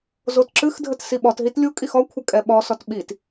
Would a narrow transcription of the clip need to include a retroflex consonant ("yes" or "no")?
no